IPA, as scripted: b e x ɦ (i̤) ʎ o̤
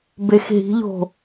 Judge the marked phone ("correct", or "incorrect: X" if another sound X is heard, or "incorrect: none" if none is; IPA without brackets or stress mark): correct